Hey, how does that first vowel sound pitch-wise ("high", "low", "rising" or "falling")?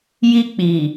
high